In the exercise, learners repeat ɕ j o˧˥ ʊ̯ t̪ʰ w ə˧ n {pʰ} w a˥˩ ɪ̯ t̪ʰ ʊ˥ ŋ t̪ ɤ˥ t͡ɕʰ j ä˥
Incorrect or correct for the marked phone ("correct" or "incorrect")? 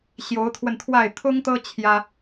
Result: incorrect